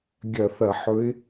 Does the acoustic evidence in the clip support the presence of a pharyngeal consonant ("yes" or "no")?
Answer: yes